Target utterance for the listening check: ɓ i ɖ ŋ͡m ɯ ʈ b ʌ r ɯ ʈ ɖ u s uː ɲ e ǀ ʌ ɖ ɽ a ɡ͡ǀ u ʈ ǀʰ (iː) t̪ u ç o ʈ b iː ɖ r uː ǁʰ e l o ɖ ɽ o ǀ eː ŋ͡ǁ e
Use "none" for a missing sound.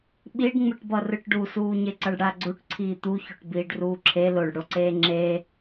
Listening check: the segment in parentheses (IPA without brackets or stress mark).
iː